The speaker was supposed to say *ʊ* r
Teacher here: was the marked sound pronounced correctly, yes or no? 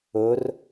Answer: yes